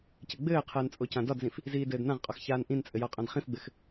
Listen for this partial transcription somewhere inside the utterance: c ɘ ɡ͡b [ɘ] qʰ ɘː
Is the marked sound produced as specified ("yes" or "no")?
no